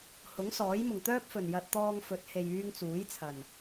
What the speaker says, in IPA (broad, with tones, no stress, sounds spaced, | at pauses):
h ʊ˨˥ ŋ s ɔː˨˥ j m ʊ˨˩ ŋ t̪ œː˥ p̚ f ɵ˨˩ n j ɐ˧ t̚ t̪ ɔː˧ ŋ f ɵ˨˥ t̚ h e˨ j yː˧ ŋ t͡s uː˨˥ j t͡sʰ ɐ˨˩ n